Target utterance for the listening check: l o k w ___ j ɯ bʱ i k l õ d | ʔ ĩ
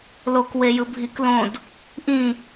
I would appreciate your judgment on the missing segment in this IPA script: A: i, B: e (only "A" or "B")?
B